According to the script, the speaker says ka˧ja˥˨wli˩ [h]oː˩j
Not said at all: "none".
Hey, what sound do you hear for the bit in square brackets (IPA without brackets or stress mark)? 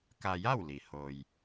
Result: h